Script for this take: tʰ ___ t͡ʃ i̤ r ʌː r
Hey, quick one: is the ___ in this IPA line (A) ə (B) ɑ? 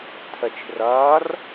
A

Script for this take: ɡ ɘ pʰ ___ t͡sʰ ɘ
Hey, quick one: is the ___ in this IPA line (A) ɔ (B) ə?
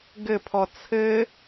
A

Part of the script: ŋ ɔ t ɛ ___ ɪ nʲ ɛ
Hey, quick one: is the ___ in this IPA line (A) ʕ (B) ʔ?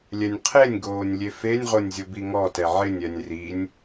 A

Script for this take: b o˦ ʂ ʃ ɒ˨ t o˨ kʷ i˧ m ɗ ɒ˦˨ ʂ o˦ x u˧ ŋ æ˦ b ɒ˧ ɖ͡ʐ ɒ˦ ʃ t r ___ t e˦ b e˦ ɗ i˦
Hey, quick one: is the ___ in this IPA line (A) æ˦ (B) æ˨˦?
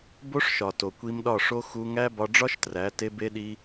B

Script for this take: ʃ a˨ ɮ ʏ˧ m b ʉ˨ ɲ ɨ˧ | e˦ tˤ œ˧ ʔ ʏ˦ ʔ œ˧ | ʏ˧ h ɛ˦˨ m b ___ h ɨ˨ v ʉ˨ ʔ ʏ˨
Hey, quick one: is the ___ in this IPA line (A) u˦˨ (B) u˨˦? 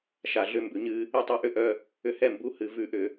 B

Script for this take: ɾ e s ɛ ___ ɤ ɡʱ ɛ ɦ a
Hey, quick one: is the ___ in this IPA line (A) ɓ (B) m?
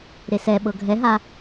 A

